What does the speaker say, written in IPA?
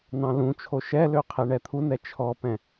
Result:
nɑ̃lũt͡ʃʰo ʃɛlø qʰeɳɛt̪ʰunɛ t͡ʃʰɔpɛ̃

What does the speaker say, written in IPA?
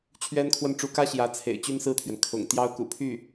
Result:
t͡ɕʰɥɛ˥nkʰwə˥˩n ʈ͡ʂu˧˥kä˥ ɕjä˧˥t͡sʰḛ˨˩ɪ̯ t͡ɕy˥nsɹ̩˥˩t̪ʰɥɛ˩n kʰʊ̰˨˩ŋ t̪jɑ˥ʊ̯kṵ˨˩pʰy˥˩

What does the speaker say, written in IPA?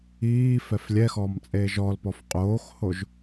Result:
iː fɛflʲɛxɔːm t͡sʼeːʒɔlpɔf qʼoːxhoʒ

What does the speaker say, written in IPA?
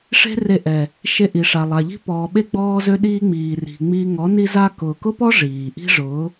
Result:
ʂe̤˦re˧ʔɛ˨ | ʃe˧ʔi˨ʂa˨lˠa˨ ʎi̤˦pɔː˨ɓe˦ ɡ͡bɔː˦zø˦ɗiː˦ ŋ͡miː˨ri̤˨ ŋ͡miː˧ ŋɔ˨˦ ni˦za˦ kʊː˨kʊ˦pɔ˦ ʐiː˨ ʔi̤˦ʐʊː˨˦

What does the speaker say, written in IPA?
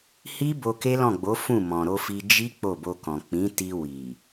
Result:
hi˦ bo˧ke˦lɔ̃˦˨ɡ͡bo˨˦ fũ˦˨ mɔ̃˨ɾo˧fi˧ d͡ʒi˦ k͡po˦˨bo˧kɔ̃˨ k͡pĩ˨˦ti˧ wi˨

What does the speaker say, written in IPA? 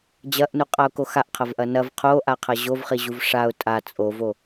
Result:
d͡ʑɐʔnuqʼaʊ̯ko xaʔqʰɐvʔɐ nɐv qʰoʔaqʰɐ ʑovχiʑuv ʂaʊ̯ tʼa t͡sʼovo

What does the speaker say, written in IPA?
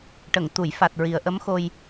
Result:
ʈə˨˩˨ŋt̪u˨˩˨jfa˨˩t̚ ɹi˨˩ə̯ʔə˧˥mxo˧j

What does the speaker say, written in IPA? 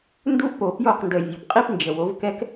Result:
ndu˦ʔpo˨pjo˦˨qndə˨ vʲo˨p qʼi˦pnd͡ʒə˨wo˨˦vkɛ˦k

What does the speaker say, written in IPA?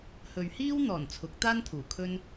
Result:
hɵ˨ɥhiː˥wn̪ɔː˨˩n t͡sʰʊ˨˥k̚t̪aː˥nt̪ʰuː˨˩ kʰɵ˥n

